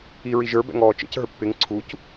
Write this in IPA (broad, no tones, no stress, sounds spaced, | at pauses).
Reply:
i ɹ i ʒ ə˞ b ɛ̰ ŋ ɔː t͡ʃ ə̰ c ɦ ə˞ pː ɪ ŋ ǀʰ u c